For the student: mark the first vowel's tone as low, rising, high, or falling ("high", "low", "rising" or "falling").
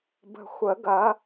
low